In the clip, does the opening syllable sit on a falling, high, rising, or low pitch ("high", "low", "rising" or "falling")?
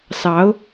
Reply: rising